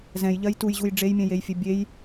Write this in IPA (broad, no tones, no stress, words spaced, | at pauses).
zɛ̃jʎɜj tujʑuj ɖ͡ʐejmʲɛ̃jejfʲe bʲej